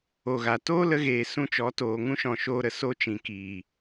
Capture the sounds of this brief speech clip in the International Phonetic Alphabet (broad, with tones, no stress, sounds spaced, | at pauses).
o˨ ɣ a˨ t oː˦ l ə˧ ɣ eː˨ s ũ˧ t͡ʃ ɔ˨˦ t oː˨ ŋ ũ˦ ʃ ɔ̃˨ ʃ oː˧ ɾ ə˨ s o˦ t͡ʃ ĩ˨ k iː˨